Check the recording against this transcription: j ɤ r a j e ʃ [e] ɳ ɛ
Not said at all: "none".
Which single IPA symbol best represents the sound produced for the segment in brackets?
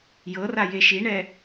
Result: i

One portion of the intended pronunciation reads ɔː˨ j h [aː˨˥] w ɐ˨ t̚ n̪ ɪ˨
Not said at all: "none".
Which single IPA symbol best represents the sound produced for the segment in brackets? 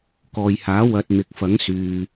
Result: aː˨˥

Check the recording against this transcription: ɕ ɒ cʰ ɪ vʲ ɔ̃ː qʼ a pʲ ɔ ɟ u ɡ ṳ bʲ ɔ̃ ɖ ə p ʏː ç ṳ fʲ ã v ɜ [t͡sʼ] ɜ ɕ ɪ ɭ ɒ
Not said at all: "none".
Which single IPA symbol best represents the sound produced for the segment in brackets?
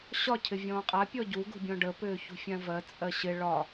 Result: t͡sʼ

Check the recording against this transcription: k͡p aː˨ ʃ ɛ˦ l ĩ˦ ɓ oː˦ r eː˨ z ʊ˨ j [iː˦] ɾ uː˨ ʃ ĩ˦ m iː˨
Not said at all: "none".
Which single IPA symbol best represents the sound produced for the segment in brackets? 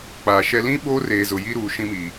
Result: i˦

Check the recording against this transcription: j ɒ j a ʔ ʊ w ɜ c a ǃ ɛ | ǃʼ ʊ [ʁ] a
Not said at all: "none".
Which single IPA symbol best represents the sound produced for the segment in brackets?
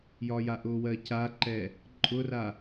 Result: r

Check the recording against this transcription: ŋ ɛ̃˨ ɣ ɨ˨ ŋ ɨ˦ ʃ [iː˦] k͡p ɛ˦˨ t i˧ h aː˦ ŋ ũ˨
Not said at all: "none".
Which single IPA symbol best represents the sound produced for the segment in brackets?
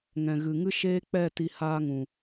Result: eː˦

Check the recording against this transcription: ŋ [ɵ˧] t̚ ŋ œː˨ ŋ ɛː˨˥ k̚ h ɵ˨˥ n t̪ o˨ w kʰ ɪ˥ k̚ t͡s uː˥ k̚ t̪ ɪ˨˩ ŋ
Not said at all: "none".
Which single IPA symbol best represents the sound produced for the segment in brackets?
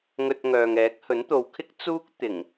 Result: ɵ˧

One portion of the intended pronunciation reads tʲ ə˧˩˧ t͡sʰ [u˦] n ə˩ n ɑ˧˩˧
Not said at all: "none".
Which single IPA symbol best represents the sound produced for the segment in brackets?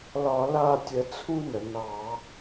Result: u˦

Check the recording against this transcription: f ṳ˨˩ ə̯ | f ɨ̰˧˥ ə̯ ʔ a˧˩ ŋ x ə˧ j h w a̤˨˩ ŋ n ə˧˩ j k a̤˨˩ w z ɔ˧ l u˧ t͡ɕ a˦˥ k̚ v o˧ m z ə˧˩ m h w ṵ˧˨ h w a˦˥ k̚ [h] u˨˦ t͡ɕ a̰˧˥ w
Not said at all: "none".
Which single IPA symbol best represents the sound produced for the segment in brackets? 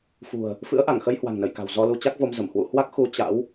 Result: x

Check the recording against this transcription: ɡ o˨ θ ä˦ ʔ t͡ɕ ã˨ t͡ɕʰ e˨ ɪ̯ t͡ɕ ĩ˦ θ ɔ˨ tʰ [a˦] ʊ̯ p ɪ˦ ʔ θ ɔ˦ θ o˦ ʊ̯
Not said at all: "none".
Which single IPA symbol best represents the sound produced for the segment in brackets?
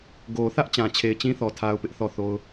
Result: a˦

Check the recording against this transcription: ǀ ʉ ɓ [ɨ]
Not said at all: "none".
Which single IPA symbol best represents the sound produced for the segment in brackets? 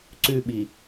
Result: i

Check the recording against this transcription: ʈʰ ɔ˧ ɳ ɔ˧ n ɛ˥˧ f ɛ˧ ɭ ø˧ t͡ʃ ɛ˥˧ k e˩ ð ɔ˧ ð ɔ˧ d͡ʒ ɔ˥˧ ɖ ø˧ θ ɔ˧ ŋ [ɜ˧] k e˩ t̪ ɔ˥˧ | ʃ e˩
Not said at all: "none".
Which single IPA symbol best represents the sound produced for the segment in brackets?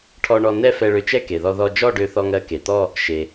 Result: ɜ˧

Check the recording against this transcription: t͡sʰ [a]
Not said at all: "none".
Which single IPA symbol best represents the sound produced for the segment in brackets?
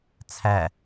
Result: æ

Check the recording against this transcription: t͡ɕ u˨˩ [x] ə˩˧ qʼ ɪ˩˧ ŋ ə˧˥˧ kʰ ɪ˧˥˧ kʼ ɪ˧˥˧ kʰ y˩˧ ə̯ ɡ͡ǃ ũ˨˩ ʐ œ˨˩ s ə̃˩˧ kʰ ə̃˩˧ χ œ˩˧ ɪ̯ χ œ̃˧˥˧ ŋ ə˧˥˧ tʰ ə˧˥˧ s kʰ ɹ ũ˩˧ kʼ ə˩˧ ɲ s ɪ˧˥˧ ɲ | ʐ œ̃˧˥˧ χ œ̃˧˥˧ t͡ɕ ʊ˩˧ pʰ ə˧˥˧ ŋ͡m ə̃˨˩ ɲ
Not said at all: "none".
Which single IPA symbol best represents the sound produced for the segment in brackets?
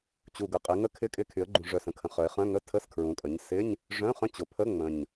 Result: ɡ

